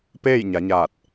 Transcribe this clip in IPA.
p eː˥˨ j ɲ a˩˧ ɲ aː˧˩ t̚

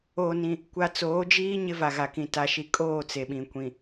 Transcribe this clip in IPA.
oː˨ n ĩ˨ | kʷ a˨ t͡s oː˨˦ d͡ʒ iː˦ ɲ ɪ˦ v a˨ ɣ a˨ k ĩ˨ t a˦ ʃ i˦ kʼ oː˦˨ t͡s e˨ ɓ ĩ˨ kʷ ĩ˨

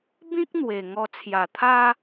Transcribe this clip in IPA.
b ĩ˦ k̚ n̪ w e˨˩ ŋ ɔ˧ t͡sʰ j a˨˩ t̪ʰ a˦

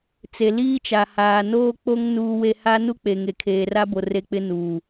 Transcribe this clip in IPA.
t͡s e˨ l iː˦ t͡ʃ a˨ h aː˨ n oː˦ k͡p o˦ ŋ n uː˦ w e˦ h a˦ n u˦ k͡p e˨ ŋ e˨ kʰ eː˨ r a˦ b o˨ r e˦ k͡p ɪ˦ n uː˨

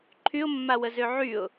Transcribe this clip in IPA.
ǃʰ y ʊ̯ mː a w ə z ø ʕ y ʊ̯

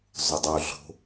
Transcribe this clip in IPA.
zˤ ʊ dˤ u ɮ o̤

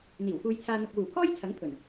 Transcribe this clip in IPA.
n̪ iː˨˩ w f uː˧ j t͡sʰ aː˧ n̪ ʊ˨ k̚ w uː˨˩ pʰ ɔː˥ j t͡sʰ ɐ˨˥ ŋ pʰ ɵ˨˩ n

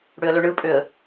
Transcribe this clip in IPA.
ɽ ø ə̯ l ø ɳ ɯ pʼ ø ə̯

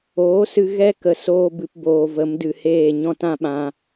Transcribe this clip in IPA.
oː˨˦ s ɨ˧ ɣ ɛ˦ k ə˨ s oː˧ b ɨ˨ p b oː˨ v ə˨˦ m d ɨ˨ h eː˦˨ ɲ ɔ̃˧ t ã˦ ɓ ã˧

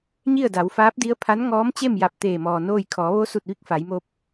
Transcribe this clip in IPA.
ɲ i˥˨ ə̯ d a˩˧ w f aː˧˥ p̚ d i˧˥ ə̯ pʰ a˧˥ n ŋ ɔː˧˥ m t͡ɕ e˥˨ m j a˧˩ p̚ t̪ eː˧˩ m ɔː˩ n oː˥˨ j kʰ ɔː˩˧ ʋ o˧˥ s u˧˩ t̚ ʋ i˥˨ k̚ f a˩˧ j m o˧ p̚

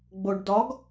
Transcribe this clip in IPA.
ɡ͡b o ɖ d ɒ ɡ

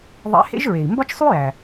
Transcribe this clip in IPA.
ðˤ ḛ˧˥ h ḛ˥ ʒ ɹ e˩ i̯ m b ɒ˥ t͡ʃ sˤ u˥ j æ˩

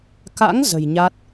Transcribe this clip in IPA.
k a̰˧˥ ŋ z ə̤˨˩ j ɲ a˦˥ t̚

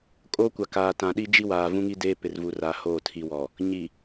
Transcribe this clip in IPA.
kʼ oː˦ kʷ a˨ k aː˨ t ã˨ ɗ i˦ d͡ʒ i˦ w aː˨ v ũ˦ ŋ i˦ d eː˦ p ɪ˨ r v u˨ r aː˨ h oː˦˨ tʰ i˨ w ɔ˨ | ɲ i˨

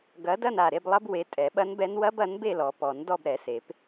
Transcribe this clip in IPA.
ɡ ɐ˨˥ d ɐ˥˧ n a˧˩ ɾ e˥˧ b lˠ ɐ˦˥ b w e˨˥ tʼ ɛ˨˩˦ ɓ ɐ˦˥ n b ɛ˦˥ n w ɐ˦˥ b ɐ˨˥ n b e˥˧ l ɔ˨˩˦ p ɔ˨˩˦ n d ɔ˥˧ b ɾ ɛ˨˩˦ s e˨˩˦ p

